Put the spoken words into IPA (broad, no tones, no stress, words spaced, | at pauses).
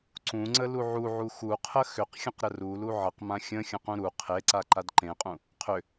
ǀũŋ͡ǀə luʕuʕu xuqʰə xʏqxʲə̃q ɾərulu ʕəqmã xʲə̃xʲə̃qũ ɾu qʰeǀa ǃadǃẽqʼũ | qʰʏ